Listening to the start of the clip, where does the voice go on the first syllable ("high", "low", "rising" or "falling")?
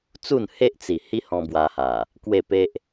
falling